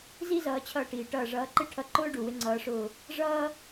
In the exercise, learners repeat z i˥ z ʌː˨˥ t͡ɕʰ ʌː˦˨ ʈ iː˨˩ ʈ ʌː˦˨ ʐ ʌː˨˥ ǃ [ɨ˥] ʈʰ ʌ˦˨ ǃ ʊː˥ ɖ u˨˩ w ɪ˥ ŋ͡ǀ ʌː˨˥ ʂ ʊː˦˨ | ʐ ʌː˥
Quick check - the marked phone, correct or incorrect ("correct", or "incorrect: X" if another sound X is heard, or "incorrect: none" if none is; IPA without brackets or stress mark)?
incorrect: ɪ˥